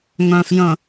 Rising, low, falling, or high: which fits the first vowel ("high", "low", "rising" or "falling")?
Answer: low